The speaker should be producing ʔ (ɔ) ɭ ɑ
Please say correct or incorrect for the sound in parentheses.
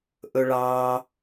incorrect